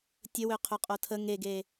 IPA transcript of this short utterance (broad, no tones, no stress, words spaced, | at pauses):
tʲəwø qʰøqʼotʰə ŋeɡe